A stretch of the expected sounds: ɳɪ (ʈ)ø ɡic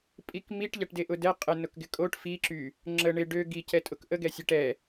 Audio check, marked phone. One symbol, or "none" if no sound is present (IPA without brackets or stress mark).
ɖ